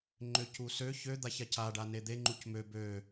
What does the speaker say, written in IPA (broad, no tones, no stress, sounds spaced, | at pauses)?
ŋ͡ǃ ø c u s ø ç ø d̪ a ç a c a ɖ a n e d̪ e ŋ͡ǃ u c m ø b ø